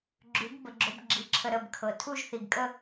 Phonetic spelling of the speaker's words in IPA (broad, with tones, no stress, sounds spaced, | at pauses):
ɡ͡ǁ ʉ˩˧ ɡ b ə˩˧ ɡ͡ǁ o˧˥ b ɡ͡ǁ i˩˧˩ ǁʰ ə˧ ɾ ə˩˧˩ b kʰ ɤ˩ tʰ u˥˧ ʒ θ i˩ ɡ kʼ ə˥˧